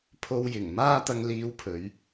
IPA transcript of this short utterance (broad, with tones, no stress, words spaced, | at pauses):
pʰo˧w jɪ˨˩ŋ maː˥t̪ɐ˧ŋliː˧wpʰɵ˨˧ɥ